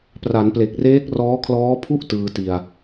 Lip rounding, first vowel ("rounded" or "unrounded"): unrounded